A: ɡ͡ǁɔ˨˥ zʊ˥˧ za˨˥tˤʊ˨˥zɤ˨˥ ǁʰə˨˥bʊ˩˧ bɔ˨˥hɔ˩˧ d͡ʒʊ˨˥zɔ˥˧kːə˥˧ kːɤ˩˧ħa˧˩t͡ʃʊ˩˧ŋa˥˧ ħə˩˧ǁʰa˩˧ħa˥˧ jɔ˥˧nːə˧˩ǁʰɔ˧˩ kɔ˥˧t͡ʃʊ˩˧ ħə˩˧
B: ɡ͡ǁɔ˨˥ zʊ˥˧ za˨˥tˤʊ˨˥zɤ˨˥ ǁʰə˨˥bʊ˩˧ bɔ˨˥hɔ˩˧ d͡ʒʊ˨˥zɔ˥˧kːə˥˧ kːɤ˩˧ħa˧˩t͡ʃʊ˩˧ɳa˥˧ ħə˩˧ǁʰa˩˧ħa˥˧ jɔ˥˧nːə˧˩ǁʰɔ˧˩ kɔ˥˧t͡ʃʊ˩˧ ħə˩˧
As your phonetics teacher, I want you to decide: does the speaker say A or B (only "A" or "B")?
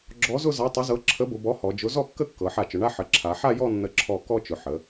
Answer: B